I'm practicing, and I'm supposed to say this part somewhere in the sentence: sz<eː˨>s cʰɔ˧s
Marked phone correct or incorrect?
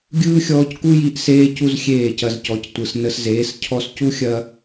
incorrect